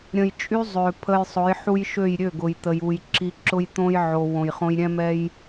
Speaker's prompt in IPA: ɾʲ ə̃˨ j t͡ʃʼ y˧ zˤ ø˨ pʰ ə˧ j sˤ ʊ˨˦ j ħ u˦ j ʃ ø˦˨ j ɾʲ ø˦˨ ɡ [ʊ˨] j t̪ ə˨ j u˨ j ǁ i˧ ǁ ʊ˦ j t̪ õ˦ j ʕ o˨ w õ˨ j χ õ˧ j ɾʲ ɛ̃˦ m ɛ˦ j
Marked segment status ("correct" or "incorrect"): correct